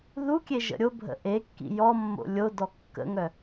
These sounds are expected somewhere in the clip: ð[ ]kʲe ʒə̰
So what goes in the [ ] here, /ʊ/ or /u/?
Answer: u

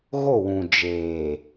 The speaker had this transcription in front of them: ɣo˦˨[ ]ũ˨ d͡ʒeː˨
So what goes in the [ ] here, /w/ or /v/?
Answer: w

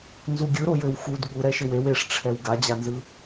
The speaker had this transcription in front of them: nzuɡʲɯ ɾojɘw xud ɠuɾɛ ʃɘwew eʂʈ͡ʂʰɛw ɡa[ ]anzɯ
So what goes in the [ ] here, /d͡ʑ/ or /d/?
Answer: d͡ʑ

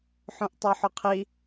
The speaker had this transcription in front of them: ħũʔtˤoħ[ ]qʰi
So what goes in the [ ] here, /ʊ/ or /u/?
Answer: ʊ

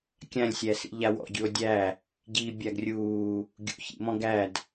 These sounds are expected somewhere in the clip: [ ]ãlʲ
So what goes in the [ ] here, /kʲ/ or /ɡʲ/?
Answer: kʲ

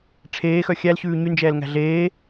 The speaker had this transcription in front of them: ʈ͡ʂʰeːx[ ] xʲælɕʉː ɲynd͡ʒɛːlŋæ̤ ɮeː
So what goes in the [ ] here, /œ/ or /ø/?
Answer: œ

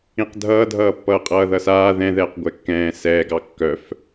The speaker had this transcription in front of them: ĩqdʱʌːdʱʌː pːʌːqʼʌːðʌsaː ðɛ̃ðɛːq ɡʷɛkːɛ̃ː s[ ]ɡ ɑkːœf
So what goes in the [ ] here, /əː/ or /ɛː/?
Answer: ɛː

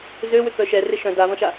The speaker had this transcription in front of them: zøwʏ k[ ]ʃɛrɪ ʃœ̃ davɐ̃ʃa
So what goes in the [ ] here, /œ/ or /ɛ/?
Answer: œ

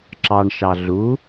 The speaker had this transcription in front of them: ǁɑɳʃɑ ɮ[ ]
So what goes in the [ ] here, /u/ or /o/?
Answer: u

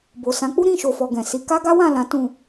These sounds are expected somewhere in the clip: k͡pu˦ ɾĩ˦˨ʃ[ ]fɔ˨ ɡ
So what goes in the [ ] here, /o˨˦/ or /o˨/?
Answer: o˨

